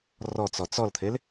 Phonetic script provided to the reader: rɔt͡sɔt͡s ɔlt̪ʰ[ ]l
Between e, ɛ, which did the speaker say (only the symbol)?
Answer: e